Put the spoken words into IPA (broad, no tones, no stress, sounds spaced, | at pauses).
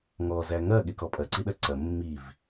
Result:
ŋ ɔ z æ ŋ ɐ ɠ e k ɔ pʼ ɐ ǀ i ɗ ɐ ǀ ɐ mː i v